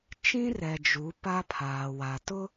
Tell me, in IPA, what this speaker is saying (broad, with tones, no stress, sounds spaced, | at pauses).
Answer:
t͡ʃ ĩ˦ r ɛ˨ d͡ʒ u˨˦ p a˦ pʰ aː˨ w a˨ t ʊ˦